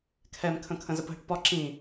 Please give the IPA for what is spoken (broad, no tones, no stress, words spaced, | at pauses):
kʰɛmkʰə̃ kʰə̃zəpɦəʈpɒ ǁĩ